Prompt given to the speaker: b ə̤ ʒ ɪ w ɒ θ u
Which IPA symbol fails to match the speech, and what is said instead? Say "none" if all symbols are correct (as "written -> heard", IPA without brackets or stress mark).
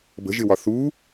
none